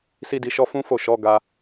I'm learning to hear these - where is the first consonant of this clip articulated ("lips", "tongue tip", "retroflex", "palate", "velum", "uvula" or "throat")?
tongue tip